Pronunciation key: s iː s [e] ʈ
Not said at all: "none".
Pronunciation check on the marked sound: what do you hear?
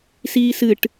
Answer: ɨ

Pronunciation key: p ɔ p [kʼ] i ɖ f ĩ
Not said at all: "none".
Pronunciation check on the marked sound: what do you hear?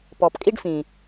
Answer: kʼ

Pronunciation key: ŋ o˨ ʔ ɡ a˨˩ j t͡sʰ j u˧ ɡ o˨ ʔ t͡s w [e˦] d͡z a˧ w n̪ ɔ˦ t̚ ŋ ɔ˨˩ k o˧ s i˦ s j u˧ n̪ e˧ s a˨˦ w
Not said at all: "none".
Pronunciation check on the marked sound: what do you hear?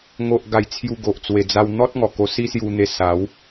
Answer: e˨˩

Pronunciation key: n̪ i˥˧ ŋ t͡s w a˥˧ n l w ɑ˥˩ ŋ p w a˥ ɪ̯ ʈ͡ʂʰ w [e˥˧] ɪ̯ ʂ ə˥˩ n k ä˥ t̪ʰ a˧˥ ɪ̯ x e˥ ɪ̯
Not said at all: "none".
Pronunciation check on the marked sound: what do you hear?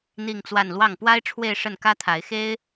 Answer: e˥˧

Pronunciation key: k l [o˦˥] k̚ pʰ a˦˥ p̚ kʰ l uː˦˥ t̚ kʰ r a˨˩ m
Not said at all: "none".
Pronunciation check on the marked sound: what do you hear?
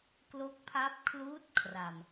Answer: o˦˥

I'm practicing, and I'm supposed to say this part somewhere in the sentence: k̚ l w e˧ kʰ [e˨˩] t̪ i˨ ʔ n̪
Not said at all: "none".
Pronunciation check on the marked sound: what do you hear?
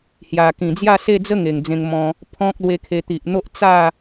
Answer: e˧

